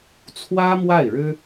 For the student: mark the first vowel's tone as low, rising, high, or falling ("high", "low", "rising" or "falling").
high